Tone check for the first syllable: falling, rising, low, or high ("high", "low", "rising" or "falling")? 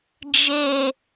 high